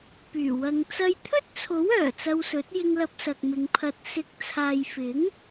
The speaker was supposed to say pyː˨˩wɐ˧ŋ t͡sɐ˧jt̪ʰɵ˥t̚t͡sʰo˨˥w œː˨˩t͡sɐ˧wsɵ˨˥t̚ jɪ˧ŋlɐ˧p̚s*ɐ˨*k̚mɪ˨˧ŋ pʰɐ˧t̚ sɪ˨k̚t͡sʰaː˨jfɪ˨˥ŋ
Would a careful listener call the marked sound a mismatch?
no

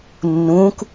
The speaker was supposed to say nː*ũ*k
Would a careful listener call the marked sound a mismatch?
no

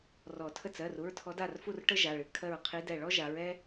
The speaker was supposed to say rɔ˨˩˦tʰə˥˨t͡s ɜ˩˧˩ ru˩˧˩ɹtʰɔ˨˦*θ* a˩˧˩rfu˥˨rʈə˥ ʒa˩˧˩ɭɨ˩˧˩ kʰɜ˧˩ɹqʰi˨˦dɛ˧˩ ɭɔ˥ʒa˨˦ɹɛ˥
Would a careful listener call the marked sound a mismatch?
yes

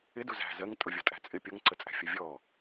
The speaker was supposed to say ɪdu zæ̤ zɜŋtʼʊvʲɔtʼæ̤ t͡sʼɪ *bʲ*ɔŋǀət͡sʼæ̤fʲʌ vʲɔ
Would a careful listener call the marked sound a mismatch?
yes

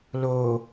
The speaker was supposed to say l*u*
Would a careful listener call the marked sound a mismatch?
yes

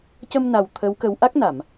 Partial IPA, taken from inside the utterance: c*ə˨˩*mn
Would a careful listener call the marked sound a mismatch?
yes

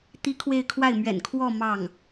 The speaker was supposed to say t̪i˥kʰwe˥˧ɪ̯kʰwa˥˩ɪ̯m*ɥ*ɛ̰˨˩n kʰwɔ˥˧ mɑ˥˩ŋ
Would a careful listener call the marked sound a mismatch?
no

